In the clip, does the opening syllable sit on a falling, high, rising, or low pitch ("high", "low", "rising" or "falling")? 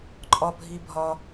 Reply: low